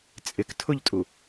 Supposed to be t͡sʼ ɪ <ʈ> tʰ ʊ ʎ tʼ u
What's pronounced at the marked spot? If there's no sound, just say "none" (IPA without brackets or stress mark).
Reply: k